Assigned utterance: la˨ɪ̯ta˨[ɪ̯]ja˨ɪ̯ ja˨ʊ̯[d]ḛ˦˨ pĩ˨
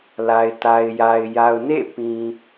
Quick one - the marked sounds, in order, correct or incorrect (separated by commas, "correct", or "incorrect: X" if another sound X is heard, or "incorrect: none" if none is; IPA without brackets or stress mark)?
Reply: correct, incorrect: n